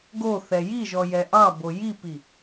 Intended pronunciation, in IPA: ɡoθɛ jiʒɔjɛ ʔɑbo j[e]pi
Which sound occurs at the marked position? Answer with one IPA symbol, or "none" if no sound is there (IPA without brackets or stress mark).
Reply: i